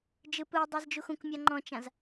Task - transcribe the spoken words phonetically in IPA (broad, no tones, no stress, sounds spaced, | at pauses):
d͡ʒ ɯ p ɯ i̯ dˤ ɯ z d͡ʒ u x ũ k mʲ a ŋ͡ǃ ɔ̃ t͡ʃ ã z